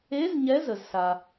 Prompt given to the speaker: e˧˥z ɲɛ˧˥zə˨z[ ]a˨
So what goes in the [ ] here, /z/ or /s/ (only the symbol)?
s